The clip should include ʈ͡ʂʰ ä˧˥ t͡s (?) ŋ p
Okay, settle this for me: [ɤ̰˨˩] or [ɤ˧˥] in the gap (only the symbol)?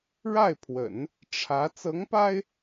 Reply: ɤ˧˥